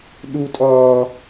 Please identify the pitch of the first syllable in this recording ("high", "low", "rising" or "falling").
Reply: high